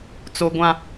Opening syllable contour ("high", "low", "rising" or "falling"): high